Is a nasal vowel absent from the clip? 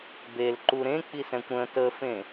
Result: no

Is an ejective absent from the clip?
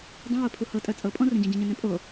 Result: no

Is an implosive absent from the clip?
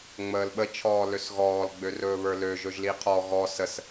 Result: no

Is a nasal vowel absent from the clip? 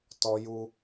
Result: yes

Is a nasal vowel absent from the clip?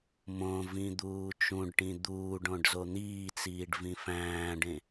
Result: no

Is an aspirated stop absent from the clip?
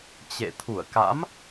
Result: no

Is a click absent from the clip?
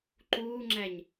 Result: no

